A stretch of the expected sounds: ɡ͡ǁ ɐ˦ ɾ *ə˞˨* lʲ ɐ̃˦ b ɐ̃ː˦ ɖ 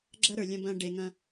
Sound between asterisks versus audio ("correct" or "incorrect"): correct